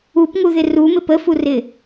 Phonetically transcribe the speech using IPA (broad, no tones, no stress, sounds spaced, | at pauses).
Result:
u p ŋ u ð ɪ r u m ɪ p ə f u r ɪ